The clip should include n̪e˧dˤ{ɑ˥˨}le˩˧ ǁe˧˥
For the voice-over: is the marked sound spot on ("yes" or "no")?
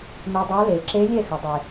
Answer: no